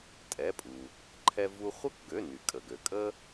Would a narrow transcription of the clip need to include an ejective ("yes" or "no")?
yes